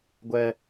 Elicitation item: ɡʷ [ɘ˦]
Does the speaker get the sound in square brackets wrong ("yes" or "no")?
yes